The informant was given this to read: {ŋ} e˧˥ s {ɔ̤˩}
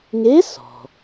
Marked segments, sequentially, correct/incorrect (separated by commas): correct, correct